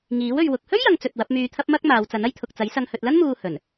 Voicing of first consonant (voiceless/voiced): voiced